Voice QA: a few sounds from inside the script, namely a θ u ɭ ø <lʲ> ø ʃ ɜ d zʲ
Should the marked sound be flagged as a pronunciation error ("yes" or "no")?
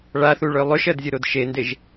yes